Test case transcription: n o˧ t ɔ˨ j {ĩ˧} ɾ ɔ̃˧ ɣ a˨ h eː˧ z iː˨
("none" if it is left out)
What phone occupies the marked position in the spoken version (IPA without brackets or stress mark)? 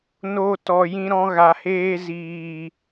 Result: ĩ˧